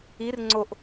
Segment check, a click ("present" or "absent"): present